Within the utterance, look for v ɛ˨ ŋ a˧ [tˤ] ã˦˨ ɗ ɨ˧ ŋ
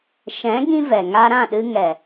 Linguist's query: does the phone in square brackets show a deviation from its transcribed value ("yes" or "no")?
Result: yes